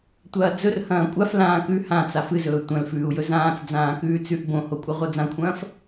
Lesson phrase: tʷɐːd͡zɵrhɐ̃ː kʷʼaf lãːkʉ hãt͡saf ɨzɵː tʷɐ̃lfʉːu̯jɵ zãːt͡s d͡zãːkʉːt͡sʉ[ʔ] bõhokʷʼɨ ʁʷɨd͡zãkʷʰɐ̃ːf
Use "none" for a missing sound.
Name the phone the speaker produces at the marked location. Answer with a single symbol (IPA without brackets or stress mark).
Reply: ʔ